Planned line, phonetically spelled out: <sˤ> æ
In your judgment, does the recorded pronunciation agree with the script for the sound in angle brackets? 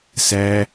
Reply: no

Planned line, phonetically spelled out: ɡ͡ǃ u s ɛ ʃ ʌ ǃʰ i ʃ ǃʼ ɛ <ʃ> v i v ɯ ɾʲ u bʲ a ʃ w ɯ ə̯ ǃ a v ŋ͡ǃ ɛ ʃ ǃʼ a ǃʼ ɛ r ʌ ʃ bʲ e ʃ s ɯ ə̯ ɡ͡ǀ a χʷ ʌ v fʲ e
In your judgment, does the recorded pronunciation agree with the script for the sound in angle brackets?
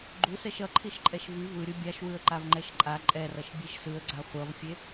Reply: yes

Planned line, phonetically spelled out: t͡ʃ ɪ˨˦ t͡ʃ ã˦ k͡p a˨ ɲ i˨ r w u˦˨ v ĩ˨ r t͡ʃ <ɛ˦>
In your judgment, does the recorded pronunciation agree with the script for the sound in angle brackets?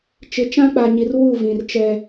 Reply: yes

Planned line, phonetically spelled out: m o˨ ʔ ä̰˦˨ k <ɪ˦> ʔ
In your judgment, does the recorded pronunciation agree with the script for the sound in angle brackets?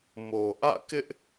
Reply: yes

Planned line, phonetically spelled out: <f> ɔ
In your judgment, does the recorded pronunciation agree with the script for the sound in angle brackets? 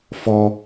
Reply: yes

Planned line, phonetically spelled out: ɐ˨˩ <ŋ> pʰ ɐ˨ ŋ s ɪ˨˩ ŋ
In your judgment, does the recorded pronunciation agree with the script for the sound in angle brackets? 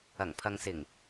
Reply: yes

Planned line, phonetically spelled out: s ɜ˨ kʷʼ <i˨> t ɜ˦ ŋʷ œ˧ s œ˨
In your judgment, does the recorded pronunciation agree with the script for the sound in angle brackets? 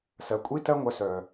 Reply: no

